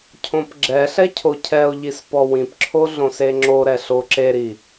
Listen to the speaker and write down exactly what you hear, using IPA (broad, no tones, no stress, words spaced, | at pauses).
cʰõpɡ͡ǁɛɬɛ cʰocʰɛo̯ʎis pɔwĩpǁʰo ɮõseŋ͡ǁoɾɛ ɬoǁeɾi